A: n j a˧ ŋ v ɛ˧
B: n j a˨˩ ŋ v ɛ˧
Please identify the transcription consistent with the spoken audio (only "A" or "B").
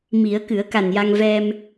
A